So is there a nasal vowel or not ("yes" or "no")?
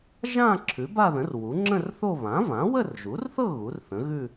yes